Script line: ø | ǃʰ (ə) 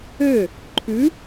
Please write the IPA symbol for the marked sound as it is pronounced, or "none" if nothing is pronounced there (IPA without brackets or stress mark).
ʉ